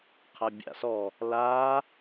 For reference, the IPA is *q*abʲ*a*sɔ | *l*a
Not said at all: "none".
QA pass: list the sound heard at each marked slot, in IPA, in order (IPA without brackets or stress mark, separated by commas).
qʰ, a̰, l